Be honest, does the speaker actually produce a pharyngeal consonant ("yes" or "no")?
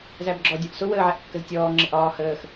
yes